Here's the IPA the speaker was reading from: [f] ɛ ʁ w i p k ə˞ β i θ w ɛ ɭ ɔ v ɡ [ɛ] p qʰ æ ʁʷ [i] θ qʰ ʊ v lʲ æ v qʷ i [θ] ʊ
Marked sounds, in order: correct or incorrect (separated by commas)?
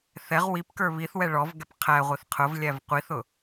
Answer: incorrect, correct, correct, correct